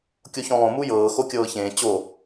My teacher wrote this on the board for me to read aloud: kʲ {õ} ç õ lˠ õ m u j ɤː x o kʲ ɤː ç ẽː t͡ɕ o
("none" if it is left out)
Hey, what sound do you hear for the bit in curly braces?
o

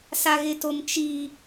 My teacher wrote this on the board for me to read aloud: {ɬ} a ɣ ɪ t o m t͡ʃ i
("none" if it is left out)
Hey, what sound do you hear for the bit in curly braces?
s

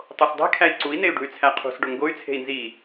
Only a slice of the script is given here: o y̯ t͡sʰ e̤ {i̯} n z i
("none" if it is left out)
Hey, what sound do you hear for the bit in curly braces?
i̯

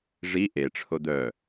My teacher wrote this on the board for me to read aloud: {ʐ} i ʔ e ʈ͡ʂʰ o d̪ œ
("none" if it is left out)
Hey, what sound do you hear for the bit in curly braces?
ʐ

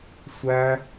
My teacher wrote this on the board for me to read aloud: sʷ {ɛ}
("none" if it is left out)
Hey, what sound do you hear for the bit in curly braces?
æ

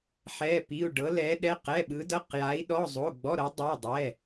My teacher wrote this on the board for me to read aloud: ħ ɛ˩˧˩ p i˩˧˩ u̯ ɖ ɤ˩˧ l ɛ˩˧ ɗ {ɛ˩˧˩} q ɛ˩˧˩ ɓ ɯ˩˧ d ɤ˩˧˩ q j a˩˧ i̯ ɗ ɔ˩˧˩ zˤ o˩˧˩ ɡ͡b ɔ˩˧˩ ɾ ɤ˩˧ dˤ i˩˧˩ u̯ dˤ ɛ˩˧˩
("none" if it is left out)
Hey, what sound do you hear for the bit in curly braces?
ɛ˩˧˩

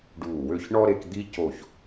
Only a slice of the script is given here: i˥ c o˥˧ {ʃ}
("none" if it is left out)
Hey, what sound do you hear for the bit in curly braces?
ç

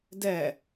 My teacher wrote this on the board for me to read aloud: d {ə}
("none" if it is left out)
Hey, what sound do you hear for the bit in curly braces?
ɛ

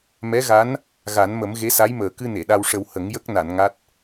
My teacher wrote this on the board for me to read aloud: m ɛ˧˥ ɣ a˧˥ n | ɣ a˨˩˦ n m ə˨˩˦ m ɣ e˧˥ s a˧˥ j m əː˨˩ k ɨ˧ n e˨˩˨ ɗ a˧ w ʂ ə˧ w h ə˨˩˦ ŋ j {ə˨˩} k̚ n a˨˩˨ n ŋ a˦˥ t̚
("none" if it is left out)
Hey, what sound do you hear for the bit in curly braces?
ə˦˥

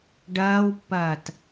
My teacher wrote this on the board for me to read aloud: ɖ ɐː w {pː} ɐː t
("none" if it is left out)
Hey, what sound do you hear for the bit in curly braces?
pː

